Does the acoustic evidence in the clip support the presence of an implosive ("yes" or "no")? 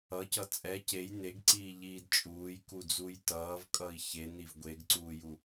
no